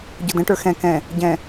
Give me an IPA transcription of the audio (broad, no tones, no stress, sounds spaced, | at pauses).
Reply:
ɟ ʊ d ə̃ ʈ ə˞ x ɛ̃ k ɛ̃ | ɟ ɛ̃